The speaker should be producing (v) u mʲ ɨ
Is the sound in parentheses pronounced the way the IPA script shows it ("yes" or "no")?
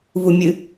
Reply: yes